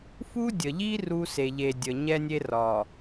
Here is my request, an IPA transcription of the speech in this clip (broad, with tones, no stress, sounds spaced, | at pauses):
f u˦ dʲ ə˨ ʎ i˦ r u˦ s e˨ ʎ e˨ dʲ ə˨ ɲ ɛ˦ nʲ e˦ r ɒ˨